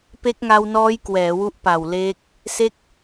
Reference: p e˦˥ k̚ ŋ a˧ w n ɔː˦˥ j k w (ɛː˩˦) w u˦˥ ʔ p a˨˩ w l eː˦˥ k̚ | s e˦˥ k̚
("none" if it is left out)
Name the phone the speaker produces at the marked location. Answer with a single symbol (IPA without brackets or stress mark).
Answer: ɛː˩˦